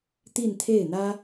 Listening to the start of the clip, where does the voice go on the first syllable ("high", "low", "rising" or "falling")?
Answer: falling